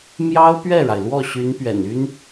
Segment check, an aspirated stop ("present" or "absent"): absent